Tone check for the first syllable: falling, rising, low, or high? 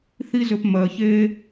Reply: high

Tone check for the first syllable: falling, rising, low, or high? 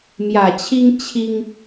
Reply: low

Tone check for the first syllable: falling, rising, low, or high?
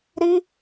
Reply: high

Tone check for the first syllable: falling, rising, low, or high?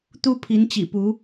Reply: high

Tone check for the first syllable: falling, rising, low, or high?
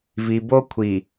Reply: low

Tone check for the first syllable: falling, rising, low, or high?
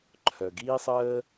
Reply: low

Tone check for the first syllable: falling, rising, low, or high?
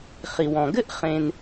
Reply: low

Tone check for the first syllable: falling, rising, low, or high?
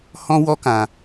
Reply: high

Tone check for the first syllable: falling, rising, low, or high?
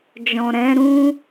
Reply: low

